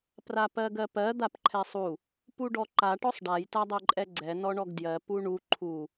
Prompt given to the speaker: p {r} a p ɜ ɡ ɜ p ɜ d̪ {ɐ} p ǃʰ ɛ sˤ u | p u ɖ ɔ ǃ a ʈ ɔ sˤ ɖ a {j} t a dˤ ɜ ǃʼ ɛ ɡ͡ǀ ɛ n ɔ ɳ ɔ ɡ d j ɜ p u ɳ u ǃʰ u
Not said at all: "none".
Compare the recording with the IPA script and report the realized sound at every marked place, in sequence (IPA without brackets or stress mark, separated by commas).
r, a, j